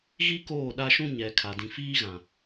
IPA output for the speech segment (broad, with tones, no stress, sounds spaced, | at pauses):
ɣ i˦ k oː˦˨ ɗ a˦ ʃ ũ˦ ɲ ɛ˨ kʰ a˨ d ĩ˨ f iː˦ ɣ ã˨